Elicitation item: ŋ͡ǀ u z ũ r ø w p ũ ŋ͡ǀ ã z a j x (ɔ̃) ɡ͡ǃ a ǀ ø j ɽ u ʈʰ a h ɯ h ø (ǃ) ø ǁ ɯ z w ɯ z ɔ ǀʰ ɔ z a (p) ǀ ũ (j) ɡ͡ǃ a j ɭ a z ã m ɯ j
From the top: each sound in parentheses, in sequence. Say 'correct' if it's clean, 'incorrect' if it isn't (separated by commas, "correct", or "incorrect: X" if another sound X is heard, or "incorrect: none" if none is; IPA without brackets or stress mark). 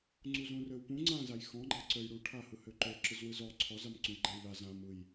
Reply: correct, correct, incorrect: m, correct